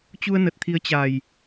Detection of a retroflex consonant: absent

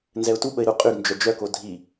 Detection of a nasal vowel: absent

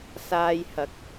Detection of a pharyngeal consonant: absent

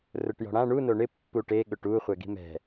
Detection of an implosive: present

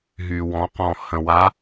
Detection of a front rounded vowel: present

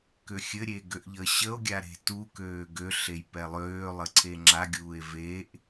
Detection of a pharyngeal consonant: absent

